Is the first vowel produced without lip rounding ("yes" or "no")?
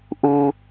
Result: no